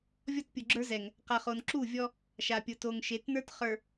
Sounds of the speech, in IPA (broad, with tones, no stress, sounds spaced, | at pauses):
vʲ ɔ˦ t pʲ u˨ ɡ͡ǁ ə˞˦ z ɛ˨ ŋ | q a˨ χ o˨ n ǁ u˦˨ vʲ ɔ˦ | ʃ a˨ pʲ ʊ˨ t o˨ ŋ ʃ e˨˦ t n ə˞˦ t χ ə˞˨